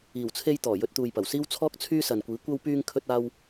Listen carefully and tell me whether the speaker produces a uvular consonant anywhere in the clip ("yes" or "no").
no